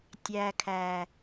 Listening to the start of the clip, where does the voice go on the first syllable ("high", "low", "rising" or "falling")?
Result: low